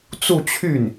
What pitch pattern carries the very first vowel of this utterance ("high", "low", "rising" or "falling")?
falling